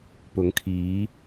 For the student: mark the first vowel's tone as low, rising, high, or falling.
rising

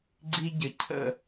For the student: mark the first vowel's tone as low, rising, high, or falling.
high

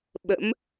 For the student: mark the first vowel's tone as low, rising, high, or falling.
rising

